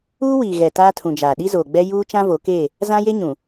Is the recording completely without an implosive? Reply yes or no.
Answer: no